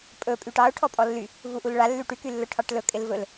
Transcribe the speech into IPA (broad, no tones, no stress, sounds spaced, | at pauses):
pʼ ɵ pʼ y ʈ ɑ ʊ̯ ʈʰ ɔ pʼ ɔ lː y | v u ʔ u l ɭ a lː y ʈ y k y lː ɵ ʈʰ ɑ ʈ l ɵ kʼ ɪ l v ɵ l